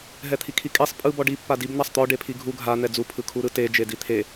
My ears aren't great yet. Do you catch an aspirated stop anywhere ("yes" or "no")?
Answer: yes